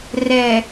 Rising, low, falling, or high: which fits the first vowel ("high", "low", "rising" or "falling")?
low